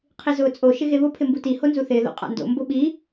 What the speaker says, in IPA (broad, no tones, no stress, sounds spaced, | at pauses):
qʰ i z ʊː t͡sʼ o ʃ ɪ ɣ e β ʊ pʰ ɪ m b u t i h o n z u θ ɪː ð o̰ qʼ a̰ n d o̰ m b ʊ ɓ i